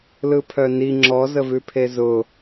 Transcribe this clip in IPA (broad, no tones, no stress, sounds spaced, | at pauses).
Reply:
l ɯ pʰ œ n i ŋ͡ǁ ɔ z ə v ʉ pʰ e z ʊ